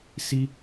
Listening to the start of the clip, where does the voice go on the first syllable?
high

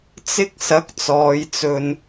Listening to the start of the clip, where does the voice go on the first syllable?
high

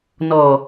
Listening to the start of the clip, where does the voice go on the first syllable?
low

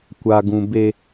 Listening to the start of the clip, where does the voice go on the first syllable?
low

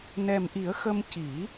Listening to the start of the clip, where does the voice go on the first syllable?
low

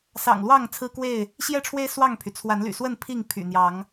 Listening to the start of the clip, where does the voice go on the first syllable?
low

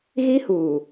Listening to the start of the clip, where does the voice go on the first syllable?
high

